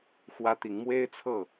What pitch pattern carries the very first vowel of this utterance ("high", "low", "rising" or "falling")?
high